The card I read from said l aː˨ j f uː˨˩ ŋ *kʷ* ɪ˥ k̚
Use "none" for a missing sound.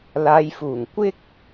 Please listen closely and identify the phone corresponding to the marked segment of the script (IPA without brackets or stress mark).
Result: kʷ